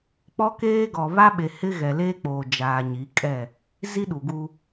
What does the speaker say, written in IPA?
k͡pɔ˦keː˦ɡɔ˨ βa˦ɓe˨ hɪ˦ɣɛ˨leː˦k͡poː˨ d͡ʒaː˨ɲi˨˦kʼɛ˦˨ | zi˦ɗu˨ɡu˦

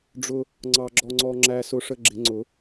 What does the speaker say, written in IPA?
ɖ͡ʐʊ˧ | ŋ͡ǀɑ˧ɡ͡ǁɔ˧ŋ͡ǀɔ˧ ŋ͡ǁæ˧sʊ˧ʂə˧ ɡ͡ǁɪ˨˩˦ŋ͡ǀʊ˨˩˦

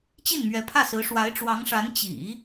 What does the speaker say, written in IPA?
t͡ɕi˥˩nmɥɛ˧˥pʰä˥˩sɹ̩˧˥ ʂwa˧˥ɪ̯ʈ͡ʂwɑ˧˥ŋʂa˧˥n t͡ɕḭ˨˩˦

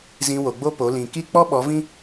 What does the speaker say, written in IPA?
zĩ˧wo˨ɡ͡bo˦po˨˦ lĩ˨ki˦ k͡pɔ˦ɓɔ˨˦vĩ˦

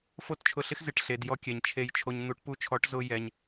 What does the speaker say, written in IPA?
fo˦˨tt͡ʃʰʊ˧ ɬɪ˦x zɪ˨ʈɬe˨djɔ˧ kʲɛ˨ɲ t͡ʃʰe˧jt͡ʃʰo˧ɲ n̪u˨˦ʈ pu˧t͡ʃʰɔ˨˦ʈzʊ˧ jɛ˧ɲ

